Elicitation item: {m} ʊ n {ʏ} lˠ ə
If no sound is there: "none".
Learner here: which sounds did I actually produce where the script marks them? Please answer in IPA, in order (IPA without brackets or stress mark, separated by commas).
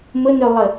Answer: m, ʏ